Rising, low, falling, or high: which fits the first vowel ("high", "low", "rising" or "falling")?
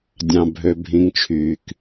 low